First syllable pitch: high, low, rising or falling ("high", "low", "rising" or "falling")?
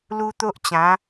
high